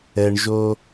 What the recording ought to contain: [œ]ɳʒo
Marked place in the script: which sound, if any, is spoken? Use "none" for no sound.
ɛ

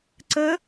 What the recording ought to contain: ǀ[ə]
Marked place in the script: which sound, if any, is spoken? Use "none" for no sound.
ə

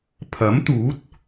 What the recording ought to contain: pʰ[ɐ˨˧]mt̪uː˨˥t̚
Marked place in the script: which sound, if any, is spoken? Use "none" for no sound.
ɐ˨˥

